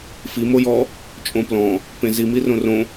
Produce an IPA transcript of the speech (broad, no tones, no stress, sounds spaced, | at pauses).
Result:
f i m o j ɔ | t͡ʃʼ õ p l ɔ̃ | p ẽ z i m i r õ r õ